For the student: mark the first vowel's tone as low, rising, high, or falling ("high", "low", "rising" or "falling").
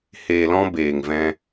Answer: low